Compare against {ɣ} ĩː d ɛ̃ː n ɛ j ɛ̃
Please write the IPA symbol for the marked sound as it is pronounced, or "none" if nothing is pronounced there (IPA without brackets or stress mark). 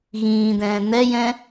ɣ